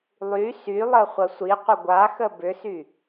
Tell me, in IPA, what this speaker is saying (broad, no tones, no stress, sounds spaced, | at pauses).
lˠ y s y lˠ ə χʷ ɐ sʷ i qʷ ə ɡʷ a x ə b ʏ s y